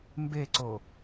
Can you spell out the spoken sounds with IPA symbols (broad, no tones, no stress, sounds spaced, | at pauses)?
m b e ǀ o